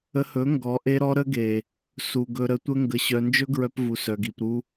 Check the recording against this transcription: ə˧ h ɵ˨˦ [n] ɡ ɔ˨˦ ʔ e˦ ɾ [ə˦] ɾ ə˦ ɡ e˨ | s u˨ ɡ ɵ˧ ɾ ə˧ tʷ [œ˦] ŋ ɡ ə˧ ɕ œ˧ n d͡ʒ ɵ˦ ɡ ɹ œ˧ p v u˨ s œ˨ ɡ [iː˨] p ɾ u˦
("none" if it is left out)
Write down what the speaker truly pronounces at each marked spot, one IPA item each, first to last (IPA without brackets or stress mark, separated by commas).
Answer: ŋ, ɔ˦, ə˦, i˨